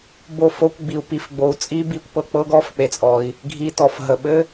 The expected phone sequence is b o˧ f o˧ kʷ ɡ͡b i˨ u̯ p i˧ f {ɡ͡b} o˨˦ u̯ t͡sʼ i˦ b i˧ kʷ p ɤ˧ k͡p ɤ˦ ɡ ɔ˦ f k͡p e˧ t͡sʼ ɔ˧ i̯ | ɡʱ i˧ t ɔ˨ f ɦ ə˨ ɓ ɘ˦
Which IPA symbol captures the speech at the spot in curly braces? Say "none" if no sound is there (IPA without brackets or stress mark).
ɡ͡b